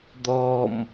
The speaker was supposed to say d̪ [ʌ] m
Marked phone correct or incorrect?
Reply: incorrect